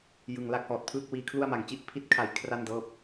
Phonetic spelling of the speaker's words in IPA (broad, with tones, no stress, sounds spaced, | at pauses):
j ɯ˨˩ ŋ l a˦˥ k̚ h ɔː˨˩ t̚ pʰ ɯː˥˩ k̚ w iː˧ kʰ l u˥˩ a̯ m a˨˩ ŋ t͡ɕ i˥˩ ʔ pʰ i˦˥ t̚ kʰ a˩˦ j kʰ r a˥˩ n d ɤː˦˥ p̚